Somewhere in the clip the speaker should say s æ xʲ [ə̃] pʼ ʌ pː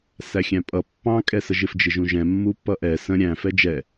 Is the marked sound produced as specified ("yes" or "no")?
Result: no